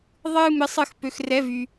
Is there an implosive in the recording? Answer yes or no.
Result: no